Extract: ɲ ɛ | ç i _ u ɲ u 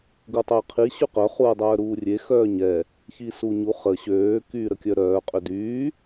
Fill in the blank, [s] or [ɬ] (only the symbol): s